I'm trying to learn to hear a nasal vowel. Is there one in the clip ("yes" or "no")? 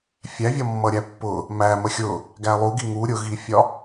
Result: no